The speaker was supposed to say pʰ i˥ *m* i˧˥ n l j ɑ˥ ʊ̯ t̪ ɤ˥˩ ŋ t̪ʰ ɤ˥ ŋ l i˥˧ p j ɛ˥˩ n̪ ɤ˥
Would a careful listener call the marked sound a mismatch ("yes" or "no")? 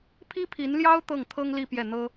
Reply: yes